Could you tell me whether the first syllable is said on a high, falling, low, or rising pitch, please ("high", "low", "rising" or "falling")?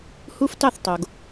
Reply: high